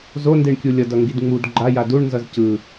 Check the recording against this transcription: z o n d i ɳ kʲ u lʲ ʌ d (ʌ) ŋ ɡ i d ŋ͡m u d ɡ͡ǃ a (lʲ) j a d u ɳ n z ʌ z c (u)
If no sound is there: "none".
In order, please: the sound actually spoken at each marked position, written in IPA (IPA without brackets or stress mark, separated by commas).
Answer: ʌ, none, ɯ